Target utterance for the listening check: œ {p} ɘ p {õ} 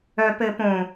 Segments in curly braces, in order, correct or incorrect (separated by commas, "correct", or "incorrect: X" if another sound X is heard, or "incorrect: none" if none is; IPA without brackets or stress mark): correct, correct